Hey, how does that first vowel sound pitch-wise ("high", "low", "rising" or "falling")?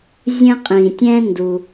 high